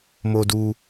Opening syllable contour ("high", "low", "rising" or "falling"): low